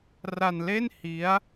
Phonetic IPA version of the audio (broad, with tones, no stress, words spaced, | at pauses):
ra˧nle˥˩n hi˦˥a̯